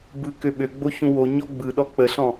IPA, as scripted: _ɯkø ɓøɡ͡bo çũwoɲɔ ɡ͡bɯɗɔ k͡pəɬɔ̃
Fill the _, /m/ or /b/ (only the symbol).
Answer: b